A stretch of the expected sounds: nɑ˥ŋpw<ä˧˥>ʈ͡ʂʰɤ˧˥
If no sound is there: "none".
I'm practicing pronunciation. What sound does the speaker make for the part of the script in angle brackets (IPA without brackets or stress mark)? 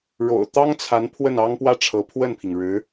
ä˥